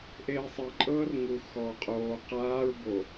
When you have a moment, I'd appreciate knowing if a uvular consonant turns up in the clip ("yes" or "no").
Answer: yes